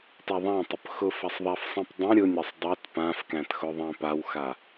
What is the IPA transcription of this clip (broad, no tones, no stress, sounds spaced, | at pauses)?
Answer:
t a ðˤ ã tˤ ʊ p x ʊ f a sˤ ðˤ æ f sˤ ĩ p dˤ ɛ̃ ɾʲ ʊ nʲ a sˤ dˤ a t p ã f k æ̃ t x ʊ ðˤ æ̃ p a w x a